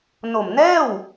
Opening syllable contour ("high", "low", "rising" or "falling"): low